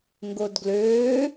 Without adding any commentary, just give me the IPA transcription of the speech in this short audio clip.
ŋ ɡ o d ɡ l øː

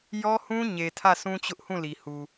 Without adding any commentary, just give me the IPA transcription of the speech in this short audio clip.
j ɔ˦ h ũ˦ ɲ e˨ tʰ ä˦˨ sʰ ũ˦ t͡ɕ ʊ˦ ʔ h ũ˦˨ l i˨ h u˨

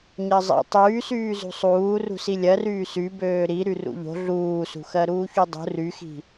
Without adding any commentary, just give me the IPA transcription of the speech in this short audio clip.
ɲ ɜ zˤ ḭ tˤ yː s yː z ṳ sˤ uː r ṳ s i lʲ ɜ r yː s y b øː ɾ i ɾ y r ṵ ʎ o̤ ɮ uː s ṳ x ɜ ɾ uː ç u dˤ ṳ r y x i̤

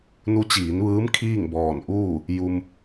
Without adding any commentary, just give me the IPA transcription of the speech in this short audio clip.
n u˧˥ t͡ɕ iː˩˧ n ʋ ɯː˧˥ m kʰ iː˥˨ ŋ b ɔː˧˩ n ʔ uː˥˨ | j u˧ m

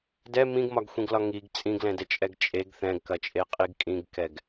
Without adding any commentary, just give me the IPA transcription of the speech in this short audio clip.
d ɛ m ĩ ɡ m ɒ ɡ xʷ ĩ ɡ l ɒ ŋ i ɡ t͡sʼ ĩ ɡ l ɛ̃ d ɛ t͡ʃʼ ɛ ɡ t͡ʃʼ e ɡ θ ɛ̃ ɡ k ɐ t͡ʃʼ e qʼ i ɡ kʼ ĩ ɡ k ɛ ɡ

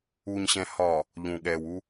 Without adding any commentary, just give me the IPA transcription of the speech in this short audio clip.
u˨ ɲ ɕ ɛ̃˨ h ɒ˨ | ʎ ũ˨ ɠ ɛː˨ w u˦

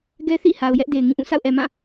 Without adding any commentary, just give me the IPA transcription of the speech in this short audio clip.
ɡ ɛ˦ θ ḭ˦˨ h a˨ ʊ̯ j ɛ˦ ʔ d e˨ ɪ̯ ŋ ĩ˦˨ ʔ ũ˦˨ s a̰˦˨ ʊ̯ ʔ ɛ˨ m ã˦˨

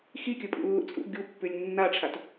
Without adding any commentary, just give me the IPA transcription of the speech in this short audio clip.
x i kʲ ɵ pʼ ṵ lː ṵ t͡sʼ ṵ ɡʲ u pː ʉ lʲ nː a ʈ͡ʂʰ a t

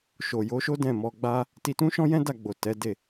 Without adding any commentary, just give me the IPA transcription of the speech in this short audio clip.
ʃ o˨ j o˨˦ ʃ o˦ d ɛ̃˦˨ m ɔ˧ ɡ͡b a˦ | t i˧ t ũ˦ ʃ ɔ̃˦ j ɛ̃˦ d a˦˨ ɡ͡b o˨ t ɛ˨˦ d e˦˨

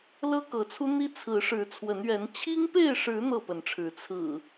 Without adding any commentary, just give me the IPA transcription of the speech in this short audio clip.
l ɤ˦ k ɤ˨˦ t͡sʰ u˦ n̪ i˦ t͡sʰ ɹ̩˨˦ ʂ ɻ̩˨˦ t͡sʰ w ə˨˦ n ɥ ɛ˨˦ n t͡ɕʰ i˦ ŋ p e˥˨ ɪ̯ ʂ ɻ̩˨˦ n̪ ɤ˥˨ p ə˨˦ n ʈ͡ʂʰ ɻ̩˨˦ t͡sʰ ɹ̩˨˩

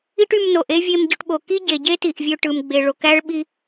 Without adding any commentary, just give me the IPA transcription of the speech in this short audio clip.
i˥ ʈ y˧ m n o˩ ʔ e˥ vʲ e˧ m ɟ ø˧ ʈ ɓ o˩ k i˥ ɟ e˩ ɟ e˥ t i˩ ʔ vʲ ø˧ ʈ ɯ˩ m ɡ͡b e˩ ɭ o˩ k æ˥ ɭ ɓ i˧

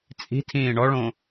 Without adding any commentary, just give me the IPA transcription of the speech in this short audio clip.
t͡sʼ i̤ tʰ ĩː ɳ ɔ ɭ õ

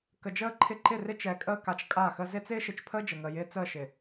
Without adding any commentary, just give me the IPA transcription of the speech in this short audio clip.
k ə˨ d͡ʒ əː˦˨ ǃʰ ɪ˦ ǃ ɪ˦˨ r ɪ˦ t͡ʃ ɛ˨ kʼ əː˦ k a˨ t͡ʃ kʼ a˦˨ x ə˦ z ɪ˦ t͡s ɪː˦ ʃ ɪ˨ t͡ʃ pʰ əː˦ d͡ʒ ə˨ ŋ əː˨ j ɪː˦ t͡s əː˦˨ ʃ ɪ˨

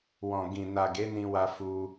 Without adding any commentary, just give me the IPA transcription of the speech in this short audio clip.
w ɔ̃˨ ɡ ĩ˨ n a˨ ɡ e˨˦ n ĩ˧ w a˧ f u˧

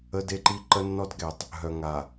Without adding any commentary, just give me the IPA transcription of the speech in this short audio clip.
ə˦ d e˦ ǃ i˦ ǃ ə˦ nː ɔ˦ d ɡ ɛ˨ tˤ | ɦ œ˨ ŋ a˨

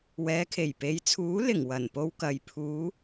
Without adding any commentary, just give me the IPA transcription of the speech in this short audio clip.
w ɛː˨˧ kʰ e˨˩ j p e˨˧ j t͡sʰ uː˨˥ l ɪ˨˩ ŋ w ɐ˨˩ n p o˧ w k ɐ˨ j pʰ uː˨˧

